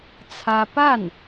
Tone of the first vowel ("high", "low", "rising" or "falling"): high